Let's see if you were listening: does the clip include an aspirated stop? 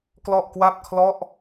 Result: yes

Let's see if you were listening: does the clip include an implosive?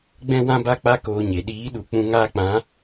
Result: yes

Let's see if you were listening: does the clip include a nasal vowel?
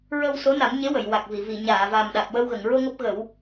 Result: no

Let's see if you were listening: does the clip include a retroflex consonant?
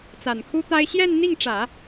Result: yes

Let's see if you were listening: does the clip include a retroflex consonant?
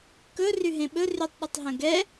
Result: no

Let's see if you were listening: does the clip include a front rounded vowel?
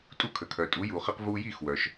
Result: yes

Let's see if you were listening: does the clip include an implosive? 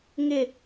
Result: no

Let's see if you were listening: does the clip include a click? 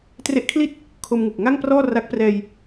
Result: no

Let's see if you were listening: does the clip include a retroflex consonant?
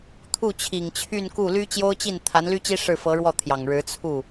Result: yes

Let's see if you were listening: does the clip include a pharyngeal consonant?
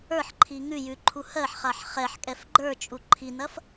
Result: yes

